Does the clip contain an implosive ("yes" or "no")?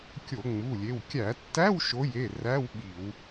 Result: yes